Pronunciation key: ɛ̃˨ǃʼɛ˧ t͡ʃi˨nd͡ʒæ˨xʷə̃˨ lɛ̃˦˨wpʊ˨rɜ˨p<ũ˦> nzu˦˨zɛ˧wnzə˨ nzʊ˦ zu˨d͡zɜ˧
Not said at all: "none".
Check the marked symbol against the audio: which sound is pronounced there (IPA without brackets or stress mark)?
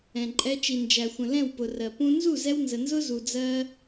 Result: ũ˦